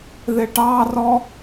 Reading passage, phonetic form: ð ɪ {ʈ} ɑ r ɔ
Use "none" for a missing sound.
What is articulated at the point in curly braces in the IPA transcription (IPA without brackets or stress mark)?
ʈ